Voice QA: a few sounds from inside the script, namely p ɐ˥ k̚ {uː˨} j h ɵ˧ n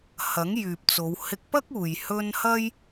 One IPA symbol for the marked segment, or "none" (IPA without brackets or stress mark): uː˨